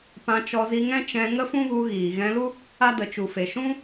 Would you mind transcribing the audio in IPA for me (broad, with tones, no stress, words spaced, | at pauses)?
pã˧t͡ʃɔ˧zi˧ŋɛ̃˦ t͡ʃɛ̃˧ ŋə˦fũ˦ɣu˧ ɣiː˨ ɣɛ̃˧lu˦ | a˦də˨t͡ʃu˨fe˨ ʃũ˦